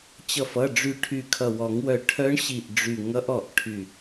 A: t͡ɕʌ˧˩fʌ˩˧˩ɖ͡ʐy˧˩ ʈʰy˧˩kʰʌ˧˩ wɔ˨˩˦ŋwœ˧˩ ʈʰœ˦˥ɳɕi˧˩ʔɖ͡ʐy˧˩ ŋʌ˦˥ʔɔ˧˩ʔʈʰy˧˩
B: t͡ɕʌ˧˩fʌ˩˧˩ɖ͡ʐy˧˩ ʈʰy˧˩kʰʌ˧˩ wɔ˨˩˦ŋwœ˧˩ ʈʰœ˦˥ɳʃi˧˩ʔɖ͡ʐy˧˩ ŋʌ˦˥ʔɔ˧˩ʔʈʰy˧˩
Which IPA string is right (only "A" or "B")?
A